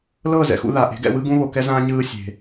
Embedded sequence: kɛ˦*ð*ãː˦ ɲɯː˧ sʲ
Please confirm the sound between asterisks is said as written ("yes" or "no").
no